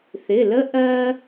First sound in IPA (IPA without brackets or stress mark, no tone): θ